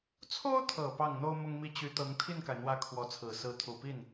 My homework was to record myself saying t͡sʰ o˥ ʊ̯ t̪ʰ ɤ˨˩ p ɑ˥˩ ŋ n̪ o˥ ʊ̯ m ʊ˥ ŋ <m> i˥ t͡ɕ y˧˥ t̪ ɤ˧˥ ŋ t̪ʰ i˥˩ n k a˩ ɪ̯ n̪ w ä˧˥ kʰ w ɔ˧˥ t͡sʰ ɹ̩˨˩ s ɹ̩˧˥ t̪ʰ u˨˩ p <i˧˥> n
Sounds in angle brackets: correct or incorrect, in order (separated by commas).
correct, incorrect